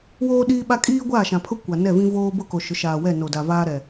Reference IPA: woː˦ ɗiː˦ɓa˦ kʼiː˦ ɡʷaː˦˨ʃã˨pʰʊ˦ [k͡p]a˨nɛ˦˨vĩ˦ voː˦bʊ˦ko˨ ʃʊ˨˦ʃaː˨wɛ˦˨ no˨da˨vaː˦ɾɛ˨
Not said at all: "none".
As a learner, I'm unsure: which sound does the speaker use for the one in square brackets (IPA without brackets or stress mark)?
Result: kʷ